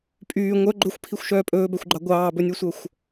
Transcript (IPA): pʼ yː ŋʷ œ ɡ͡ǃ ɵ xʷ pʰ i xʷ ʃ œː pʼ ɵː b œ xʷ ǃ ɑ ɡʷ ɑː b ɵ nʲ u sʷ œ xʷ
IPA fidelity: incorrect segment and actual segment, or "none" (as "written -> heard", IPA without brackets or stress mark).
ǃ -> ɡ͡ǃ